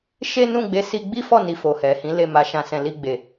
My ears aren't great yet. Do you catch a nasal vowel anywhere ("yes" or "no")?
yes